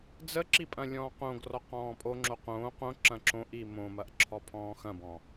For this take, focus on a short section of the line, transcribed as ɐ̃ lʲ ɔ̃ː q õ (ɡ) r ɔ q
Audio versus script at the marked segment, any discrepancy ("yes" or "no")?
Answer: no